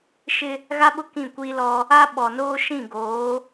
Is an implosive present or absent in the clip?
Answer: present